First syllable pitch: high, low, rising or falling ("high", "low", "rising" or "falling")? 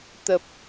low